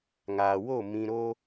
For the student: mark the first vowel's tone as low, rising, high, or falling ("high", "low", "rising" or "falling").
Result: low